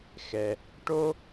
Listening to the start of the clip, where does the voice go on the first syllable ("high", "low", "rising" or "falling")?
low